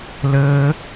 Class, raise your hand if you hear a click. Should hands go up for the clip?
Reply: no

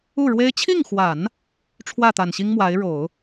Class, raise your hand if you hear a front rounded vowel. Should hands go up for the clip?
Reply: no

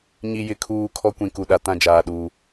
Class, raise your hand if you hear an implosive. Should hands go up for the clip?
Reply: yes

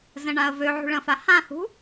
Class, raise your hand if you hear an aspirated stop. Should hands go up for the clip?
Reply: no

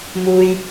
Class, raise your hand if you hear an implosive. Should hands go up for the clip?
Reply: no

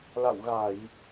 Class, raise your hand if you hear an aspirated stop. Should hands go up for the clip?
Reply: no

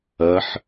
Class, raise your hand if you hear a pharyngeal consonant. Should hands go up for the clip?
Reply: yes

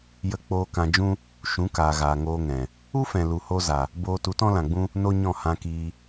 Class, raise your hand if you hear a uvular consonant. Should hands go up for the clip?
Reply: no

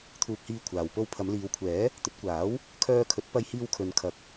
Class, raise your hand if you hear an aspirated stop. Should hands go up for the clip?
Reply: yes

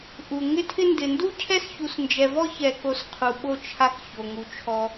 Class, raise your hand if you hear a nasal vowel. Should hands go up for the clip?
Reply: no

